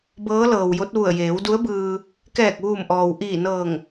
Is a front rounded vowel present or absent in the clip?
absent